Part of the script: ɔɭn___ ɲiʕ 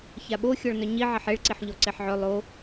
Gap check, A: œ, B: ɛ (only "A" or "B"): A